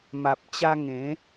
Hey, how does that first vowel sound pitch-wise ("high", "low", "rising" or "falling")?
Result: low